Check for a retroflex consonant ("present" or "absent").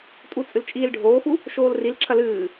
present